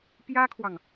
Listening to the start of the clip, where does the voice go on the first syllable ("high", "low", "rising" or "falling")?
high